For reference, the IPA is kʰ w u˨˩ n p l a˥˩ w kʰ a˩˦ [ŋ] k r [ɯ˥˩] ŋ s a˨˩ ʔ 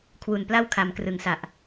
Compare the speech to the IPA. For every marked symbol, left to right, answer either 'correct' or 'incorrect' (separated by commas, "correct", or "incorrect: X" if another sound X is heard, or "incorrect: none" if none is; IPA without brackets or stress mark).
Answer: incorrect: m, incorrect: ɯ˩˦